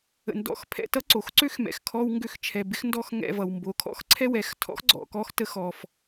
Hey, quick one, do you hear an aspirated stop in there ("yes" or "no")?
yes